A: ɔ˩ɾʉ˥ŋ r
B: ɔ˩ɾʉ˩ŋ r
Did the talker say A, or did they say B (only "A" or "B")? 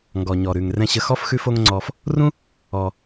B